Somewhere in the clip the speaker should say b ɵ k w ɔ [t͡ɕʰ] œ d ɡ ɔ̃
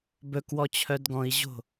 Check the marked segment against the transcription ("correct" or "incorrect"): correct